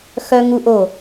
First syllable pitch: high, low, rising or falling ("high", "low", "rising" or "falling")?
high